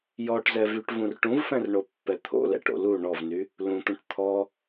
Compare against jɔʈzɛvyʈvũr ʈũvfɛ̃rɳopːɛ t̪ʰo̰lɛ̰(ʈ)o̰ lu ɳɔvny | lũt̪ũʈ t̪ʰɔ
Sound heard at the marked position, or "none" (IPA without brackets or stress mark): ʈ